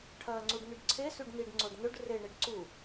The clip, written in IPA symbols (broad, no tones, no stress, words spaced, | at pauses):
ʈʰɐːŋ͡ǀuɖnʉɖǀʰe sʉɖniɖŋ͡ǀoɖ nɵɖ reɳeɖ ǀu